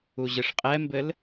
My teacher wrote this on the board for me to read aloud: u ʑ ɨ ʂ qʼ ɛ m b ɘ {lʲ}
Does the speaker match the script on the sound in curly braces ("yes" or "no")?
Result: no